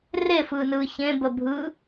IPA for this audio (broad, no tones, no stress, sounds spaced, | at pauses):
r e f ɯː n ɯː ç ẽ b ə bʱ ɯ